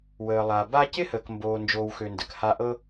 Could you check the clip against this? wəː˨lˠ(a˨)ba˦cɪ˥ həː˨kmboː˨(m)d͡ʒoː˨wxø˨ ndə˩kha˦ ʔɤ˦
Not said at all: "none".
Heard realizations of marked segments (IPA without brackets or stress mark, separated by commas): a˨, n